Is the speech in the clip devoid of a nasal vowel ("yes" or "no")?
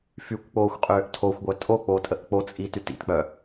yes